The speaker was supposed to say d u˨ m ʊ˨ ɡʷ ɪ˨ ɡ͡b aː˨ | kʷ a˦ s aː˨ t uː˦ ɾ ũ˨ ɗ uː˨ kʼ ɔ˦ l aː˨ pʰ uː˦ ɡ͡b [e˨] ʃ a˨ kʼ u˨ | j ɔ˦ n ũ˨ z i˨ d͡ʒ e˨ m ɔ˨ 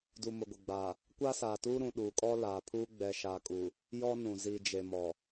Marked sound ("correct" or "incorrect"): incorrect